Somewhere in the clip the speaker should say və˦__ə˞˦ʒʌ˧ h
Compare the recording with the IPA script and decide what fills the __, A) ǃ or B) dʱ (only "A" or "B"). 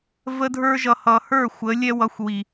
B